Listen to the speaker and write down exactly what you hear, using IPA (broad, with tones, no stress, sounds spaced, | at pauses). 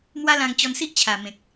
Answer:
m w a˦ l ã˧ ŋ t͡ɕ ɔ˧ n s i˦ ʔ t͡ɕʰ a˨˩ m ẽ˨ k̚